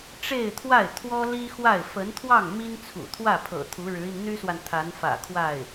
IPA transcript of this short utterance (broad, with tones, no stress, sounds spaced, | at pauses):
ʈ͡ʂ e˥˧ ɪ̯ t̪ʰ w a˥˩ ɪ̯ t̪ʰ w ɔ˥ l i˥ x w a˥˩ ɪ̯ f ə˧˥ n t̪ʰ w ɑ˥˩ ŋ m i˥ n t͡sʰ ṵ˨˩ t̪ʰ w ä˥˩ pʰ ɤ̰˨˩ t̪ʰ u˧˥ ɻ ɻ̩˧˥ i˧ n n̪ y˥ s w a˨ n t̪ʰ a˧˥ n f ä̰˨˩ kʰ w a˥˩ ɪ̯